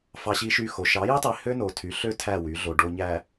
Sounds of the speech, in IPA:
fɑ˦ɕi˦ʃy˦xo˨˦ ʃɑ˨˦ji˦tˤi˨ hø˦no˨tʰy˨˦ɬø˦ tʰæ˦˨wy˨˦ɮo˨ ɖo˨ɲæ˨

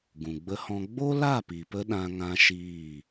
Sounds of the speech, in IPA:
ɡũ˨ɡ͡bə˧ hɔ̃˧ ɡ͡bo˦la˦˨pi˨pə˧ ɗã˦ ŋã˦ʃiː˦˨

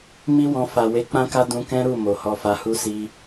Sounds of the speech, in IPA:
mi˦wɔ̃˧ fa˨we˨˦k͡pã˦ka˦ dũ˧kɛ̃˦ɾu˦˨ mo˨hɔ˧fa˧hu˦ si˧

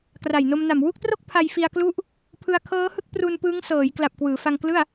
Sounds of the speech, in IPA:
kra˨˩jno˧mna˨˩m wu˥˩k̚tro˥˩k̚ pʰa˧jfi˧a̯klu˦˥ʔ | pʰɯ˧a̯kʰɤː˦˥hɯ˥˩k̚pru˧n pɯː˦˥ŋsɤː˩˦j kla˨˩p̚ kwɯː˩˦fa˧ŋklɯ˥˩a̯

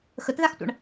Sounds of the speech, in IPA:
xətðaxtʷa̰ɳ

